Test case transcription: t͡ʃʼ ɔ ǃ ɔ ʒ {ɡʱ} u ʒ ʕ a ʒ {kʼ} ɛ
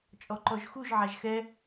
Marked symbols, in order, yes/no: no, no

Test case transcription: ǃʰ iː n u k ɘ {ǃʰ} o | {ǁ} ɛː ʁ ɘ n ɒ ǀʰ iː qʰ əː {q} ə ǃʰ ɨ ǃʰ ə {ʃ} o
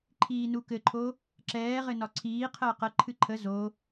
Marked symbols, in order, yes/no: yes, yes, yes, no

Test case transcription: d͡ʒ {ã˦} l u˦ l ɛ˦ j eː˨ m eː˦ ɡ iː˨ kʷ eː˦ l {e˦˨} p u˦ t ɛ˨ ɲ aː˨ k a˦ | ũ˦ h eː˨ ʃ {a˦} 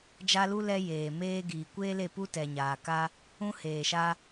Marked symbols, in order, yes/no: no, yes, yes

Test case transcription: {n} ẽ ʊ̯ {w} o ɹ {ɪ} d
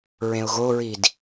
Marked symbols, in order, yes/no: no, no, no

